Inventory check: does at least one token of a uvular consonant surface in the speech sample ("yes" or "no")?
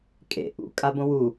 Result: no